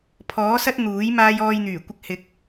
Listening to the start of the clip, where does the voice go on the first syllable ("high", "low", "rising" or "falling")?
rising